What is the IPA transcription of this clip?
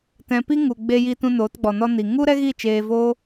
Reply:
tɛ̃˨pi˦ ŋu˨ ɡ͡be˧jiː˧tũ˧ noː˨˦tɡ͡bɔ˨nɔ˦ ni˨ ŋu˦ɾɛ˦ɣi˦˨ t͡ʃeː˧voː˦

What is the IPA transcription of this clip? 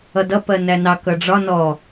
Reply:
ʌdʌ pɜnænɑ kʌɖ͡ʐɒ nɔ

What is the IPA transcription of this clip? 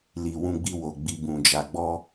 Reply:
li˧wũ˦ɡ͡bi˦ wo˧ɡ͡bi˧bũ˧ d͡ʒa˧ɡ͡bɔ˦

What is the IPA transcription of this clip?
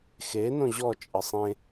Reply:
xe nõʑɔ t͡ʃʼəsˤẽ

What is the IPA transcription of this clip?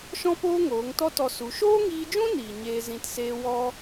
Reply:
ʃɔ̃˦poː˦ŋoː˨˦ŋ tɔ˦tɔ˧su˨˦ ʃoː˦ŋiː˧d͡ʒũ˦ niː˨ ɲeː˧ zĩ˧tseː˦ wɔ˦

